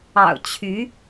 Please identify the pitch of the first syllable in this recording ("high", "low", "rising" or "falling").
low